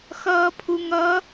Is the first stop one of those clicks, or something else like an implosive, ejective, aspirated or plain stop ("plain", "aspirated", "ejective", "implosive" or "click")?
aspirated